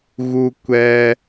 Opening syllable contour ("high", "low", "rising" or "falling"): high